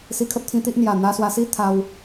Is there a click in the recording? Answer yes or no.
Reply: no